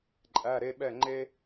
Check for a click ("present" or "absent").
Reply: present